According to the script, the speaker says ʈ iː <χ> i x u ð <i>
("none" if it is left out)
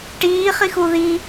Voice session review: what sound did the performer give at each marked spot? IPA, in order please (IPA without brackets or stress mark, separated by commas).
χ, i